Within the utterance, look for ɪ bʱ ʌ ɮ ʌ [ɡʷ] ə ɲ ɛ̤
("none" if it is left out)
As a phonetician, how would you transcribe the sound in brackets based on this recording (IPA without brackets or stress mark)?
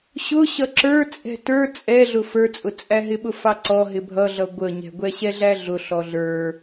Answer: ɡʷ